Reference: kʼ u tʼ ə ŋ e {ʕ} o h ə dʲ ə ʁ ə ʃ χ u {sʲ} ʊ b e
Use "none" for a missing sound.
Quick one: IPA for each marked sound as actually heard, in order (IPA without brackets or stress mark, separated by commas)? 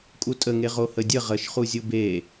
ʁ, zʲ